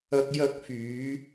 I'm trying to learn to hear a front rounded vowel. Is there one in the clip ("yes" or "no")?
yes